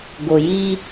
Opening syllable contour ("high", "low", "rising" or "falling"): low